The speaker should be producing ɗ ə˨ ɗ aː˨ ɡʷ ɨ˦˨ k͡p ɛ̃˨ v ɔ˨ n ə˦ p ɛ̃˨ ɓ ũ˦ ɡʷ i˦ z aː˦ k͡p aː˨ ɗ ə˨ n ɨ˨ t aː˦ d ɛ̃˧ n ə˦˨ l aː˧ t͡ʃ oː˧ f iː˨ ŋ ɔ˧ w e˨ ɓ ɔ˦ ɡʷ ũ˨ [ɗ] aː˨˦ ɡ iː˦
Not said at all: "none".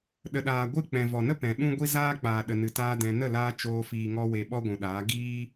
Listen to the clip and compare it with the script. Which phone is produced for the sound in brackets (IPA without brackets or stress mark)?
ɗ